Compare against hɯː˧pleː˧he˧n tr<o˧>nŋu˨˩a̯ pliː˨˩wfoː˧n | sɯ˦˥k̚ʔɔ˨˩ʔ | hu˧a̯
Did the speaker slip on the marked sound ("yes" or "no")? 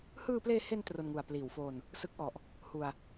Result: no